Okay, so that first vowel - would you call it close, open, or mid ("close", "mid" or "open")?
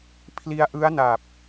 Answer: close